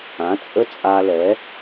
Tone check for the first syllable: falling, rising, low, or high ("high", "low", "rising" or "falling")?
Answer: rising